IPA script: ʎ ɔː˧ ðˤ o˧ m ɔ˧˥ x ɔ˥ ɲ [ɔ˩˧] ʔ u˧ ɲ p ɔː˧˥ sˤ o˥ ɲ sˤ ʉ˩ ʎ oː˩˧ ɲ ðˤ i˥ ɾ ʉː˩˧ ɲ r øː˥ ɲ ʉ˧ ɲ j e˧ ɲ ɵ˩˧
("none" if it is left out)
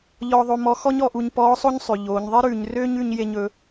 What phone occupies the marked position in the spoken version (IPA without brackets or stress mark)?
ɔ˩˧